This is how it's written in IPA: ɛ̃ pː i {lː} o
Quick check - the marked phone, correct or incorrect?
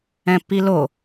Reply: incorrect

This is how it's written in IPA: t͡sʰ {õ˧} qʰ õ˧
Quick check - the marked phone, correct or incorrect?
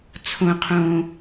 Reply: correct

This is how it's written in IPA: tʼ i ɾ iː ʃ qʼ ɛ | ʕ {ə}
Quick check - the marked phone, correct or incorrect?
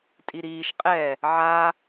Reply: incorrect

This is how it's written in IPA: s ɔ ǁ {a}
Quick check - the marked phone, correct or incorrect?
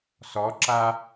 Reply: correct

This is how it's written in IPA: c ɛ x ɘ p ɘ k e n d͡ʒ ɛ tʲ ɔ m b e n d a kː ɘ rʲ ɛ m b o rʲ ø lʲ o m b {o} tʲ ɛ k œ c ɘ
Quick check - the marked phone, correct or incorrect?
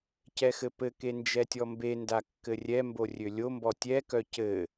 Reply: incorrect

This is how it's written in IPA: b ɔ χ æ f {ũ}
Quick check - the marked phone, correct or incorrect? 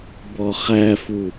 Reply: incorrect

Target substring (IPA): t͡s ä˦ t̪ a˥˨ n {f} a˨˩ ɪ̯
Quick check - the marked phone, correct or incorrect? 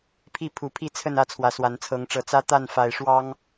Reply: correct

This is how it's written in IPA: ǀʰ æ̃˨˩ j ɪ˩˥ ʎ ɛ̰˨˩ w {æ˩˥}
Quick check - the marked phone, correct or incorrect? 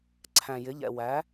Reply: correct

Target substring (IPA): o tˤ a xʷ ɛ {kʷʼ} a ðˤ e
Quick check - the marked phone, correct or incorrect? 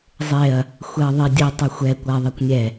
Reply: incorrect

